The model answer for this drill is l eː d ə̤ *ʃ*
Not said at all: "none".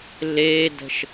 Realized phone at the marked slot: ʃ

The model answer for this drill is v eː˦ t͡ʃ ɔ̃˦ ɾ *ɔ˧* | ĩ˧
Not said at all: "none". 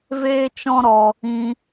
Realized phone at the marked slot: ɔ˧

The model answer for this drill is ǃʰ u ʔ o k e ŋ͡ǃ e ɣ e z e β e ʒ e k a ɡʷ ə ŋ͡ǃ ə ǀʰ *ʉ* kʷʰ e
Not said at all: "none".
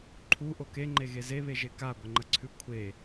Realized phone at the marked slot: ʉ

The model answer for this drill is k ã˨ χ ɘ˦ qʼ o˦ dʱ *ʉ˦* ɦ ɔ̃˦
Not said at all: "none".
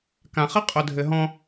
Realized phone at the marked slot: ɘ˦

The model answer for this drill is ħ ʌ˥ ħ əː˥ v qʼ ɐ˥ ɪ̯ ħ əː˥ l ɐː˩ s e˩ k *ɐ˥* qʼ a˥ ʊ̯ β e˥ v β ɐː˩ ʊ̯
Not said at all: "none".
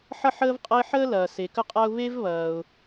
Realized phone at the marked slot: ə˥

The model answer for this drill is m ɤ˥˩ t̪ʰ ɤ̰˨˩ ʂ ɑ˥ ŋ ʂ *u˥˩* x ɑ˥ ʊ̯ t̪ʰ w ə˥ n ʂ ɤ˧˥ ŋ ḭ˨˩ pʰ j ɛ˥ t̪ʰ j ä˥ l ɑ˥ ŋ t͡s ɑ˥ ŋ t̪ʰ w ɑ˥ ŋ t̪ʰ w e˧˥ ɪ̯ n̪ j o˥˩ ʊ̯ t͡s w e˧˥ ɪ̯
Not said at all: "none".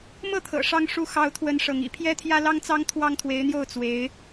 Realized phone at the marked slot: u˥˩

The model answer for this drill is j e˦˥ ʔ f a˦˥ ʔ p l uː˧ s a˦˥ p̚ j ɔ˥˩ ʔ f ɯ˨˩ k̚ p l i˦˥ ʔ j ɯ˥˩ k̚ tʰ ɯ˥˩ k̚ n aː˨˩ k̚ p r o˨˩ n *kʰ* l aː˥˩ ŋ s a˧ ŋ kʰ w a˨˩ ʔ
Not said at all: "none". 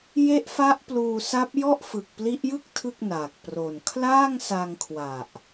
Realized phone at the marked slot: kʰ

